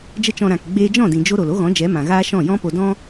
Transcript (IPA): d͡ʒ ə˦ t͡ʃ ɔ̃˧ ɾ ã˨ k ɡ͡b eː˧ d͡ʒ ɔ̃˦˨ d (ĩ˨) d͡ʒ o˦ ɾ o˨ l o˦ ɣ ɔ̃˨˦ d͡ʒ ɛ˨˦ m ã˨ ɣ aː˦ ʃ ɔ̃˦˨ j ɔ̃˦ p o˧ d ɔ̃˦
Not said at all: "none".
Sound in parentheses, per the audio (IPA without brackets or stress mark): ĩ˨